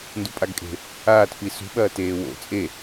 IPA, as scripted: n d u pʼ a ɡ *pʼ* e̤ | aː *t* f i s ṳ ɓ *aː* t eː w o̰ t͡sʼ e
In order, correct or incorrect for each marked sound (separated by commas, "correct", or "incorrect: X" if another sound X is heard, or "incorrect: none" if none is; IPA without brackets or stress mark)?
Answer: incorrect: kʼ, correct, incorrect: ɐː